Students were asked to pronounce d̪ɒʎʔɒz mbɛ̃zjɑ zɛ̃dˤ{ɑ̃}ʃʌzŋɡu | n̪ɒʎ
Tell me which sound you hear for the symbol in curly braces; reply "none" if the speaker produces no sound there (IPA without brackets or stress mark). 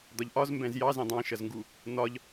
ɑ̃